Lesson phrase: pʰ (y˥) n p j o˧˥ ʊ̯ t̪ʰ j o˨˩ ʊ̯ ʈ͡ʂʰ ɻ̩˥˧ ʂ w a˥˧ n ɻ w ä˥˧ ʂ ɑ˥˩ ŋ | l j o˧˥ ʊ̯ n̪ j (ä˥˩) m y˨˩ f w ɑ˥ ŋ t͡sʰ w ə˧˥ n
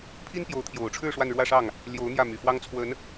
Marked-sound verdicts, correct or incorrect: incorrect: i˥, correct

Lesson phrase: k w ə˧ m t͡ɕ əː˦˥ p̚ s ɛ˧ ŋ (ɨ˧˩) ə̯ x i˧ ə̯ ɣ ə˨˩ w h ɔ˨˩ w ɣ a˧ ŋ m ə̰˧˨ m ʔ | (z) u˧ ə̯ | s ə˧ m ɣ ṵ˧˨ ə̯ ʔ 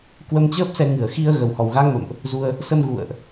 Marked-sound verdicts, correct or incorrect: incorrect: ɨ˨˩, correct

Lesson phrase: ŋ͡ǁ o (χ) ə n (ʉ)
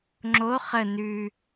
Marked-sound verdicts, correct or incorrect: correct, correct

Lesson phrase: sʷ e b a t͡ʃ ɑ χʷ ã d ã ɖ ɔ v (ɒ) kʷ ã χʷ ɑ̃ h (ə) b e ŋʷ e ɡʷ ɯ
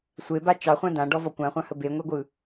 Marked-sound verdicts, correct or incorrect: correct, correct

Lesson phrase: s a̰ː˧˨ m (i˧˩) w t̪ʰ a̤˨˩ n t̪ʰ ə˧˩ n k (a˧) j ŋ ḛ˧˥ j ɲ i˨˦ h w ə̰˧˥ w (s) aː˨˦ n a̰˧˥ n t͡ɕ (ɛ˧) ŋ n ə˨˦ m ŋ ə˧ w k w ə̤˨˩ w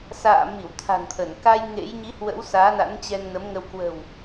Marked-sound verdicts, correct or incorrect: correct, correct, correct, correct

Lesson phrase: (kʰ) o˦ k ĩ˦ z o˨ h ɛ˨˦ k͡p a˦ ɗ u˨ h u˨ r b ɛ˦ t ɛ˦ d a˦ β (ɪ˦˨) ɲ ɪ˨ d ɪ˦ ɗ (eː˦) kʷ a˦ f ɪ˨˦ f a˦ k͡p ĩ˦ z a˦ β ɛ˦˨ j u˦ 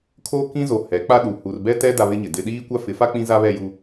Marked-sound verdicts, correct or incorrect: correct, incorrect: ɪ˦, incorrect: iː˦

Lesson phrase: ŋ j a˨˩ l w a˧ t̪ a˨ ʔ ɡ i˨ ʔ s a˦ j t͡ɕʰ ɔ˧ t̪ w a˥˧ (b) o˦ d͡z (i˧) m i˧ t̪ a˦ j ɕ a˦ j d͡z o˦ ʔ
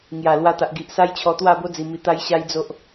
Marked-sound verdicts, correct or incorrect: correct, correct

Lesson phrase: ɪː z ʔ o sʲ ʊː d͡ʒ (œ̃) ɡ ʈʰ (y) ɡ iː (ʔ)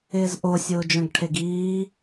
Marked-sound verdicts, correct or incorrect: correct, incorrect: e, incorrect: none

